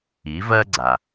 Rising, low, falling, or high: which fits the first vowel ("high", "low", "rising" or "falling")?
rising